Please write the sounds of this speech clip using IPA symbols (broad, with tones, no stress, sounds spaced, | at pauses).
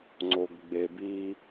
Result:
ŋ͡ǀ o˨ ɡ ɡ͡b e˨ b i˦